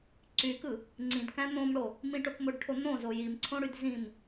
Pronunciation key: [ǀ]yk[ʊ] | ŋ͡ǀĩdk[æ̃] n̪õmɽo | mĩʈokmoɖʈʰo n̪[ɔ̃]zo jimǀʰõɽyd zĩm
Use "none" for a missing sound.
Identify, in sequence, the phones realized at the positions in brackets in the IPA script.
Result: ǀ, ɯ, æ̃, õ

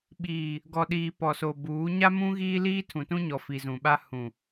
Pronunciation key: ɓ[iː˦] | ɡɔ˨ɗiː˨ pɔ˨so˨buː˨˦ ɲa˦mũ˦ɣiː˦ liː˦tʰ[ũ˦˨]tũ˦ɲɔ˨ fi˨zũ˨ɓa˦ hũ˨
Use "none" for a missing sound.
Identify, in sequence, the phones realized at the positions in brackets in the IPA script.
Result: iː˨, ũ˨

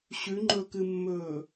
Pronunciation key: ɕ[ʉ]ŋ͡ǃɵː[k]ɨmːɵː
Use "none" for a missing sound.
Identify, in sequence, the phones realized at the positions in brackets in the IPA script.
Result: ʉ, k

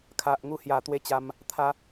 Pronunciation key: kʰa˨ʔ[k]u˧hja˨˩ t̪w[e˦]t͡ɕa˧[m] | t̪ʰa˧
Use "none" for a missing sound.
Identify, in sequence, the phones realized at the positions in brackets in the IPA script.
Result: ŋ, e˥˧, m

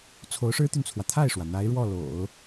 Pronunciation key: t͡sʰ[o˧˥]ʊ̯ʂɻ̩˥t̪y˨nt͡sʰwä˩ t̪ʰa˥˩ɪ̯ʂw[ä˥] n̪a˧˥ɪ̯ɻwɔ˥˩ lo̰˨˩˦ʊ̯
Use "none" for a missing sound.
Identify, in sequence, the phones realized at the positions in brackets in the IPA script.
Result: o˧˥, ä˩

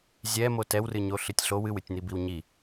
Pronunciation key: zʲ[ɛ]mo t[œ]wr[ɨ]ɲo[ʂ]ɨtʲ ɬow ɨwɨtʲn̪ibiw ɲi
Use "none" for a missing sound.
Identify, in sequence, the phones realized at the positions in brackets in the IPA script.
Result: ɛ, ɛ, ɨ, ɬ

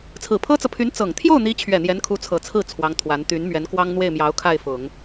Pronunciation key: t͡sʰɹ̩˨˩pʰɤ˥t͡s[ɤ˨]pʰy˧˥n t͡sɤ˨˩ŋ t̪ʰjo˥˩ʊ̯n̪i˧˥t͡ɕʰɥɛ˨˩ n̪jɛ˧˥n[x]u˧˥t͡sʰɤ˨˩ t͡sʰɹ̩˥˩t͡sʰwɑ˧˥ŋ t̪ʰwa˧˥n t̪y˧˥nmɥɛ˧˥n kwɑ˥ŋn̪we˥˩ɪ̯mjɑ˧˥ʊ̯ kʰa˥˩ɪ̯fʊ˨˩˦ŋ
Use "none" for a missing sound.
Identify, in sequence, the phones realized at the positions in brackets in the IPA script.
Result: ɤ˨, kʰ

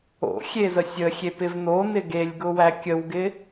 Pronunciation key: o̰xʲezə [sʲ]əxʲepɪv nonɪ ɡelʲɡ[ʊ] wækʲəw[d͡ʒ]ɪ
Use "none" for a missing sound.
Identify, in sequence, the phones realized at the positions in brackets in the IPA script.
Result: sʲ, ʊ, ɡ

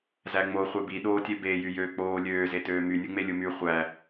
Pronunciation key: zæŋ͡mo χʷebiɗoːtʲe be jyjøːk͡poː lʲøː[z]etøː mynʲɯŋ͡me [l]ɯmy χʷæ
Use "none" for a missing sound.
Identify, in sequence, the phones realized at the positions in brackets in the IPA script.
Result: z, lʲ

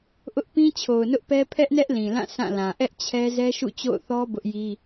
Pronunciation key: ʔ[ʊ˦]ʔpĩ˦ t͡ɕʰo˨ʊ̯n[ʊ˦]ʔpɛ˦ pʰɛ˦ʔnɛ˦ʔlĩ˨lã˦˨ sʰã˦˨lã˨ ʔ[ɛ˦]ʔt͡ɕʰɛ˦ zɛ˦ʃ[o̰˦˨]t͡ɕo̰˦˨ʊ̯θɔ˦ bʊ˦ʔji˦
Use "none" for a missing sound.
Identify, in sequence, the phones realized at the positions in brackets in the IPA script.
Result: ʊ˦, ʊ˦, ɛ˦, ṵ˦˨

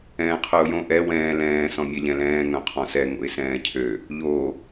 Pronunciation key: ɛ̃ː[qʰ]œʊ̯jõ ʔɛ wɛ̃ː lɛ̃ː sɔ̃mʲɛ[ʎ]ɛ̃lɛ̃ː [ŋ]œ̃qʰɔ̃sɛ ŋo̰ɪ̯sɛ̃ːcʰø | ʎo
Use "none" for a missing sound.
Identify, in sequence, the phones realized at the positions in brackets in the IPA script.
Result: qʰ, ʎ, ŋ

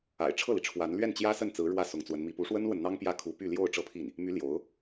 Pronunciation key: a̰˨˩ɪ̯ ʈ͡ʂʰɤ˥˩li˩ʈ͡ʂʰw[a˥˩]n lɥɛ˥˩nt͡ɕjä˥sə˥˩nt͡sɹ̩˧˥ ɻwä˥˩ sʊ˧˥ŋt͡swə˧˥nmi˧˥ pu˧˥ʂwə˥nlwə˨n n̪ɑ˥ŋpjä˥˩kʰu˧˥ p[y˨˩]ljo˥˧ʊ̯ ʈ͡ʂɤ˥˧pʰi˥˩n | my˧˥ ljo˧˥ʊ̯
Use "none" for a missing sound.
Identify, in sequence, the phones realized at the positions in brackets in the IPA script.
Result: a˧˥, y˥˧

